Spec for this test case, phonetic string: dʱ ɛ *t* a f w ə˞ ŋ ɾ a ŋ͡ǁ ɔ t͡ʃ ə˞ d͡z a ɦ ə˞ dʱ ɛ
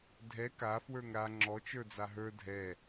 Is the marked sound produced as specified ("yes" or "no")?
no